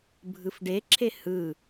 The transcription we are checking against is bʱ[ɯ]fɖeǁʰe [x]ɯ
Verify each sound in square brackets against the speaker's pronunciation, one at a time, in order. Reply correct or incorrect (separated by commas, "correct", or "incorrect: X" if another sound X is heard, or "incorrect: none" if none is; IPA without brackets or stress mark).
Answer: correct, incorrect: h